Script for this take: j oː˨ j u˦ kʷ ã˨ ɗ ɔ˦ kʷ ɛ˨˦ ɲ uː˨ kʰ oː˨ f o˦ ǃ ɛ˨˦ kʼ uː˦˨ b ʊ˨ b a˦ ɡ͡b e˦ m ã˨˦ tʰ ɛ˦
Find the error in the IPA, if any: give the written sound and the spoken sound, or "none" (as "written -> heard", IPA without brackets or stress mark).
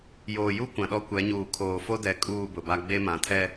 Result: ǃ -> d